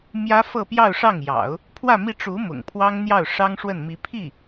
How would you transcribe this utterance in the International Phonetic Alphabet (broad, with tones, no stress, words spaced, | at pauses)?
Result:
mjä˥fɤ˥˧pjɑ˥˧ʊ̯ʂɑ˥˩ŋ jɑ̰˨˩˦ʊ̯ | pʰwä˥˧mi˥˩ ʈ͡ʂu˧˥ mʊ̰˨˩ŋpʰwɑ˥ŋ n̪jɑ˥˩ʊ̯ʂɑ˥ŋ ʂwə˥˩nmi˧˥ pʰi˥˩